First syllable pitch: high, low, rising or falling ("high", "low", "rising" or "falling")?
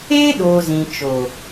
high